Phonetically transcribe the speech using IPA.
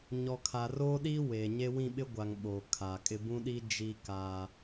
ɲ ɔ˨ kʰ a˨ r oː˦ ɗ i˦ w eː˨ ɲ e˦ w ĩ˦˨ ɓ ɪ˦ ɡʷ a˨ ŋ ɓ oː˨ kʰ aː˨ kʼ ɪ˦ b ũ˦ ɗ i˦ d͡ʒ i˦ k a˦

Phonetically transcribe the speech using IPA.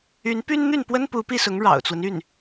y˧˥ n p y˥ n n̪ y˥˩ n p w ə˥ n p u˧˥ p i˥˩ s ʊ˧˥ ŋ ɻ ɑ̰˨˩ ʊ̯ t͡s w ə˦ n y˥˩ n

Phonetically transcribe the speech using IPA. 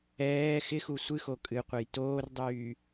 ɛː x ɪ x u sʷ ɨ x o kʼ ɨ qʷ ɛ j t oː r dˤ yː

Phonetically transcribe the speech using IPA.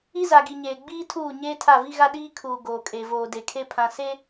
i˦ z a˨ ɡ i˨ ɲ eː˨ ɡ͡b iː˦ tʰ uː˦˨ ɲ eː˦ tʰ a˦˨ v i˦ ɣ a˦ ɗ iː˦ kʰ uː˨ ɡ oː˨ kʼ e˨ v oː˨ d e˨ kʰ e˦ pʰ ã˨ s e˦

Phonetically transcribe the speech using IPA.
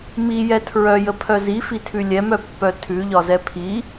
m i j ɛ tʰ ɹ œ j ə pʰ œ z i f i tʰ ʉ lʲ ɛ m œ pː œ tʰ ʉ ʎ ɒ z ɛ pʰ i

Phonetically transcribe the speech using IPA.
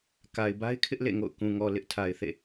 k a˨ ɪ̯ b a˦ ɪ̯ kʰ ɪ˦ ʔ l ḛ˦˨ ŋ o̰˦˨ ʊ̯ k ũ˨ ŋ ɔ˨ l ɪ˦ ʔ tʰ a˨ ɪ̯ θ ḛ˦˨

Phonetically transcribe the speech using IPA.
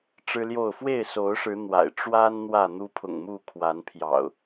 ʈ͡ʂ ɻ̩˦ l j o˥˨ ʊ̯ f w e˥˨ ɪ̯ s o˨˦ ʊ̯ ʂ ɻ̩˨˦ n̪ w a̰˨˩ ɪ̯ ʈ͡ʂ w a˦ n n̪ w ä˥˨ n̪ u˦ pʰ ʊ̰˨˩ ŋ m u˥˨ kʰ w a˨˦ n pʰ j ɑ̰˨˩ ʊ̯

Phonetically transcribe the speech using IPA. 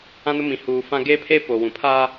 ã˦ n ʊ˦ m ĩ˨ h uː˨ f ã˦ ɡ eː˦ pʰ eː˦ p o˨ w ũ˨ pʰ a˦

